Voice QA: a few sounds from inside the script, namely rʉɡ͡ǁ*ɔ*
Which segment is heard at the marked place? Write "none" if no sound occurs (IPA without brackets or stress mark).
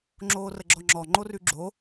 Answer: o